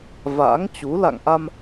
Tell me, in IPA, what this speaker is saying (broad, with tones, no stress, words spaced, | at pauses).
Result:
va̰ː˧˥ŋt͡ɕu˨˦ la̰˧˨ŋʔa˧m